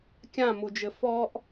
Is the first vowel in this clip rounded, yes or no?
no